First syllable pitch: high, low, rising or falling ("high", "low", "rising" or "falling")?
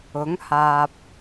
rising